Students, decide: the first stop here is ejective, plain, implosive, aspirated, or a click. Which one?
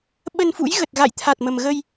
implosive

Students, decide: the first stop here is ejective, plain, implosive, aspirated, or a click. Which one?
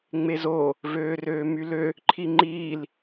click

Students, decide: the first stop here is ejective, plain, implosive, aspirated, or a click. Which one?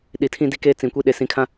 implosive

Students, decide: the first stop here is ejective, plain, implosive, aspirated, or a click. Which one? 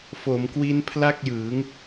plain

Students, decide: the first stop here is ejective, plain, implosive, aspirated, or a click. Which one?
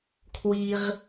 aspirated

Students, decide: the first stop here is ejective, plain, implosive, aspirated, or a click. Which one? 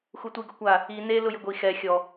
plain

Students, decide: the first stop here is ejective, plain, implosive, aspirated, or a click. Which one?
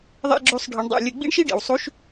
click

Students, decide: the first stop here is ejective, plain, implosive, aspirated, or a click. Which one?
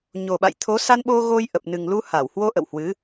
implosive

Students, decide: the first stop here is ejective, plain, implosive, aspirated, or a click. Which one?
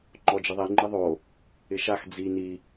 click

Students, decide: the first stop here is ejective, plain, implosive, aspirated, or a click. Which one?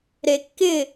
plain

